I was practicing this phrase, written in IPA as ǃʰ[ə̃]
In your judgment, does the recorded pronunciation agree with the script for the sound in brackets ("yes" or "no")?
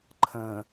yes